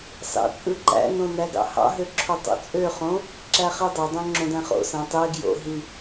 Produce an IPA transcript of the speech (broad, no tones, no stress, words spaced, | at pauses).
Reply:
sɑ̰t͡sʼɯǃæ̰nõ næɡɑ̰hɑ̰ɦø ǁʰotˤo̰t͡sʼøχõ | ǁæχidˤedˤõ ŋ͡ǁõdæ̃χo̰sæ̃ tˤe ɡjo̰ɦi